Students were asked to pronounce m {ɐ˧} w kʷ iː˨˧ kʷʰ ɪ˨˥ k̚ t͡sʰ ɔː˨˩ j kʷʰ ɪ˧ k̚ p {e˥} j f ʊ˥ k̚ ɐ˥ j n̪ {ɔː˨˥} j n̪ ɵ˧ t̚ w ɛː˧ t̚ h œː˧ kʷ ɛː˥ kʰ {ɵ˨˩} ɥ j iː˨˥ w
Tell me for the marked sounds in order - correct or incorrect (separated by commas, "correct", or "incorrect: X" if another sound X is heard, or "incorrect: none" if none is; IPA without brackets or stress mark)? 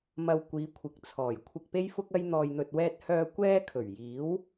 correct, correct, incorrect: ɔː˧, correct